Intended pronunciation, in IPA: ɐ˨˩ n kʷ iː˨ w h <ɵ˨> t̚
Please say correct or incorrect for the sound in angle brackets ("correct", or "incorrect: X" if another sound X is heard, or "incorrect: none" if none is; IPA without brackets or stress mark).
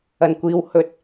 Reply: correct